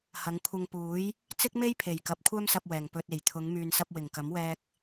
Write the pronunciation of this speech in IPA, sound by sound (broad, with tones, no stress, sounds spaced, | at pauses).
h ɐ˨˧ ŋ kʷʰ ɐ˧ ŋ p uː˨˥ j | t͡s ɪ˥ k̚ m e˥ j pʰ e˨˩ j k ɐ˨˥ p̚ kʷʰ œː˥ m s ɐ˧ p̚ w ɛː˨˩ ŋ p ɵ˧ t̚ e˨˩ j t̪ʰ ʊ˨˧ ŋ m yː˨ n s ɐ˧ p̚ w ɪ˨˩ ŋ k ɐ˨˥ m w ɛː˧ k̚